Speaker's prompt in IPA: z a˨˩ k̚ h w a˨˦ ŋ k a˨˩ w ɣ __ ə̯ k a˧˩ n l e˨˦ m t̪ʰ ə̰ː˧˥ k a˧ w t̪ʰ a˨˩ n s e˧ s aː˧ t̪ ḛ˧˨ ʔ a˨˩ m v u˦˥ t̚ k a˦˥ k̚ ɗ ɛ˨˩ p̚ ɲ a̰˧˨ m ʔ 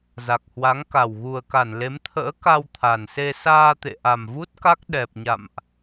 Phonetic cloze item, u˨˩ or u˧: u˨˩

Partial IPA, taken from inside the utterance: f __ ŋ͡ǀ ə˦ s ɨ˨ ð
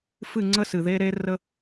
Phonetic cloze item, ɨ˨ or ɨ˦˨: ɨ˦˨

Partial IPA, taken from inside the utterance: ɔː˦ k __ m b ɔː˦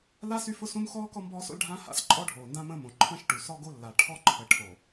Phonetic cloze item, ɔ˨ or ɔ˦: ɔ˦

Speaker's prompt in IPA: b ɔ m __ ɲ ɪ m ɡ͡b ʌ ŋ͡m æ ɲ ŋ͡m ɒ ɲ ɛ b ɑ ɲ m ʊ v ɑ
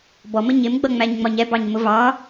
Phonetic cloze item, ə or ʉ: ə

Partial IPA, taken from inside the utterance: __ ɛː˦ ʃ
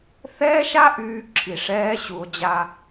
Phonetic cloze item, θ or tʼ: θ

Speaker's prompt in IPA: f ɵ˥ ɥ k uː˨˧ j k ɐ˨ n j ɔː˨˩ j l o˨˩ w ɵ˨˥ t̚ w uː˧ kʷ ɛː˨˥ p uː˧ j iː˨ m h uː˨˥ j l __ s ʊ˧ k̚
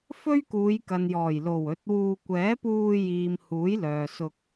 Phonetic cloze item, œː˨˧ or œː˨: œː˨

